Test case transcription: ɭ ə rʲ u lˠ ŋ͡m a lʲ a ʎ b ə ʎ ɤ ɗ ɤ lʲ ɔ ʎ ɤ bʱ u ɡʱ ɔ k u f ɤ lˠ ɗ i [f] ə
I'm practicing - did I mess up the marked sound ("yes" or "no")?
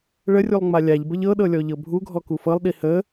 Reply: yes